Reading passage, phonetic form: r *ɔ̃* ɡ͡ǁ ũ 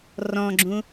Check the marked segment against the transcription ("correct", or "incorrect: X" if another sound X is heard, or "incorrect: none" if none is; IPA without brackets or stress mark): correct